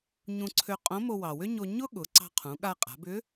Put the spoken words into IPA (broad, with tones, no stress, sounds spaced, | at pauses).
ɲ ũ˧ ǀʰ ø˧ qʼ õ˧˥ m o˧ w ɑ˩ w ʏ˥ ɲ o˧ ɲ ʊ˥ ɠ ʊ˩˧ ǀ ɑ̤˧ qʰ ũ˩˧ ɠ a˧ qʼ a̤˩˧ b ʏ˧˥